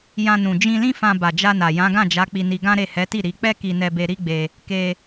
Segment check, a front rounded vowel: absent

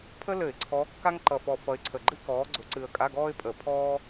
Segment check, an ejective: present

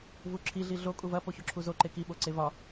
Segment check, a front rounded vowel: absent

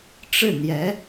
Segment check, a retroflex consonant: present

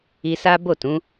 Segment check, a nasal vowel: present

